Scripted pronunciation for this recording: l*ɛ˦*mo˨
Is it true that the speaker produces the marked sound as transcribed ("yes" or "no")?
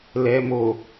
no